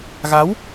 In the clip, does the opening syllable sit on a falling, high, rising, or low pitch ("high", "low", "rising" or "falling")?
rising